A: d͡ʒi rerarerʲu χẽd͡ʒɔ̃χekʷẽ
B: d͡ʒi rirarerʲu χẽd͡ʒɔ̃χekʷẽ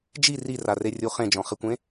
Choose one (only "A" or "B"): B